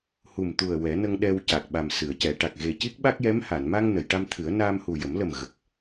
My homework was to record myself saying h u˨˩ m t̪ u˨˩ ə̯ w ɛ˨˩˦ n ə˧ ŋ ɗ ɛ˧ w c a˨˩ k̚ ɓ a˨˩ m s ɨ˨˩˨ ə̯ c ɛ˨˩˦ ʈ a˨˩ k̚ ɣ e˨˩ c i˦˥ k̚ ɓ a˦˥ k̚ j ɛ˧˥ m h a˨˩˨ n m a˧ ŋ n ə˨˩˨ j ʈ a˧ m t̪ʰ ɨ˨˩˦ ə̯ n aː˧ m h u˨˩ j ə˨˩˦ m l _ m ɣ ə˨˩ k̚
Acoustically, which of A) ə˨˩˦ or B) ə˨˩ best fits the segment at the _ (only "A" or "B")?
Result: B